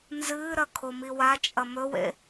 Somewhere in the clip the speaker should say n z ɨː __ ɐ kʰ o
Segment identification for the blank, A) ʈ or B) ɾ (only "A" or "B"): B